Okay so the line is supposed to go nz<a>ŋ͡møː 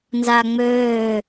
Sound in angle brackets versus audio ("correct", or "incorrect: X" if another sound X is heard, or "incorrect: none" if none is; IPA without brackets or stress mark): correct